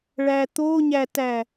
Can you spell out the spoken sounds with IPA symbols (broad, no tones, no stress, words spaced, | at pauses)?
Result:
ɭæt̪oɲætæ